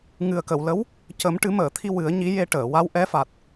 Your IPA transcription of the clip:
ŋɨ˨˩ə̯kə˨˩˨wlə˧˥w | cə˨˩˦mʈɨ˨˩˦məː˨˩˨t̪ʰi˧ wɨ˨˩˦ə̯ɲi˧˥ je˧ʈəː˨˩˨ wa˧˥wʔɛ˧˥fa˨˩t̚

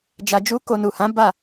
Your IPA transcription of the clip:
d͡ʒa˧ d͡ʒu˦ko˧ nu˨hã˨˦ ba˦˨

